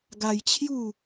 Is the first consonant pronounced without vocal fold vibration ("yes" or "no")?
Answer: no